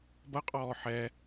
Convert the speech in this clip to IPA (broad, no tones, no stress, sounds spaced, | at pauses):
b ɐ qʼ ɔː ħ ɛ